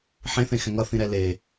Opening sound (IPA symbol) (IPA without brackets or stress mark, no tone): ħ